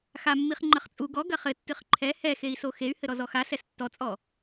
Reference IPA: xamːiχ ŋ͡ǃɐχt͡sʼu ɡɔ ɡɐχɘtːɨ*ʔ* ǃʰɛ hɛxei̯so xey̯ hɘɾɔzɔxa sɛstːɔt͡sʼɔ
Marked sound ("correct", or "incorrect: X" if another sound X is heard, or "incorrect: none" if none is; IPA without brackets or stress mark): incorrect: χ